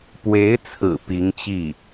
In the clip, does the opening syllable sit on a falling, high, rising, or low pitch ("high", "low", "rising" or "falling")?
rising